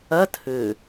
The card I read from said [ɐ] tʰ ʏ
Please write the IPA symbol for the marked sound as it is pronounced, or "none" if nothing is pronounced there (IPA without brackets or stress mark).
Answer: ɐ